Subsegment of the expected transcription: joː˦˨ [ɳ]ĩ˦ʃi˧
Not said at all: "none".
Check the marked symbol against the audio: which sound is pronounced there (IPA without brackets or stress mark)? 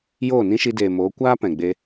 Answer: n